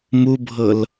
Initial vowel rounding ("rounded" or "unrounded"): rounded